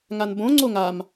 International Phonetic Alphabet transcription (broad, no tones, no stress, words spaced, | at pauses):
ŋanbõŋ͡ǀo ŋam